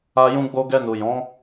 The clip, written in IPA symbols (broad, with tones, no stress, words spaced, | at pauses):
a˧ jũ˧ɡ͡bo˧ɡɛ˧ nu˨jɔ̃˨˦